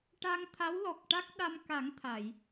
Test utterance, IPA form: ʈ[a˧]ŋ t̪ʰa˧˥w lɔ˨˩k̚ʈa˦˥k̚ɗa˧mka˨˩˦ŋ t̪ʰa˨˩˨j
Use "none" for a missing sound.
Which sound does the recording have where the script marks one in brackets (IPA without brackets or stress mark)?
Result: a˧